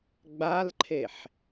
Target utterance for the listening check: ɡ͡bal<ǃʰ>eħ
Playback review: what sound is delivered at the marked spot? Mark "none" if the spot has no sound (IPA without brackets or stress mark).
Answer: ǃʰ